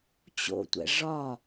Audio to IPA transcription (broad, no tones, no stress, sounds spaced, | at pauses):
t͡ɕ o̰ tʷ ɛ̰ ʐ ɒ